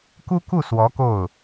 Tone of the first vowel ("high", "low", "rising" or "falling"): high